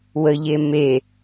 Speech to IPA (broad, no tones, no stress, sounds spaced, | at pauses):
w ə ʎ e m e